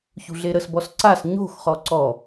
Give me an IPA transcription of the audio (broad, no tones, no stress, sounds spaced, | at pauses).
ç ṳ ɮ e ɾ ə s b ɔ s ǀ a s ɲ o̤ x χ ɔ ǀ ɔ